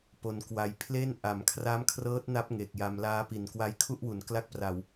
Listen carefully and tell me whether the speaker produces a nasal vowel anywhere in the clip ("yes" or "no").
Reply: no